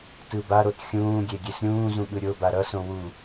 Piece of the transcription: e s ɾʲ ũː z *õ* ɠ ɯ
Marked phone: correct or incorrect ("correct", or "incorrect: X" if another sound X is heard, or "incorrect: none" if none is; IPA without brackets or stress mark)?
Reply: incorrect: ũ